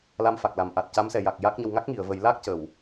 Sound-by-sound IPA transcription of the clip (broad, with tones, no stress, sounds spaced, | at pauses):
l a˧ m f a˨˩ k̚ l a˨˩˨ m ʔ a˨˩ t̚ c a˧˥ m s ɛ˨˩˨ j a˨˩ k̚ j a˦˥ k̚ ɲ ə˧ w ŋ a˦˥ k̚ ŋ i˨˩˨ ə̯ v ə˨˩˦ j l a˦˥ k̚ c ə˨˩˨ w